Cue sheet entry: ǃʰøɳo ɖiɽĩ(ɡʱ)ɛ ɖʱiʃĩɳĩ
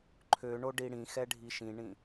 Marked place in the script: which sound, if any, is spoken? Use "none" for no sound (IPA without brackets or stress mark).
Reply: x